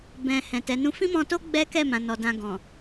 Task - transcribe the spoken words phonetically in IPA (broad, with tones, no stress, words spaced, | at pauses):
bɛ̃˨ hɛ̃˨tɛ˨˦nũ˦ fĩ˦mɔ̃˧to˦ ɡ͡bɛ˦kɛ˦˨mã˨ nɔ˨dã˧ ɡɔ̃˨